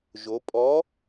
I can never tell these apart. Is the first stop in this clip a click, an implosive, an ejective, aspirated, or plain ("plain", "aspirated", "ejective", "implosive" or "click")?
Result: ejective